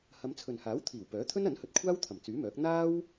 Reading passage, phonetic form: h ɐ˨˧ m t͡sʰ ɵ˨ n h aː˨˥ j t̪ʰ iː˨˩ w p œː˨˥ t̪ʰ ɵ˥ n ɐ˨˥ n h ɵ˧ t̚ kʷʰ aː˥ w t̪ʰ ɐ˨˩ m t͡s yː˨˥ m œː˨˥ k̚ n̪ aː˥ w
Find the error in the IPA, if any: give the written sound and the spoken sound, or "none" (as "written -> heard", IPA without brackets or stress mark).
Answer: j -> w